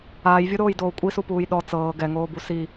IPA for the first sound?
aː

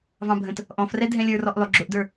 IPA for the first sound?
v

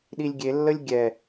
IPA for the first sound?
ɗ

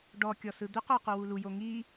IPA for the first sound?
ɖ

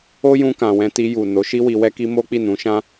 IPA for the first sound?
o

